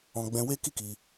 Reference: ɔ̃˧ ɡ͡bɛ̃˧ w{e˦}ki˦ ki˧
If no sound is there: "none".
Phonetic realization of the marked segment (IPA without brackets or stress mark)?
e˦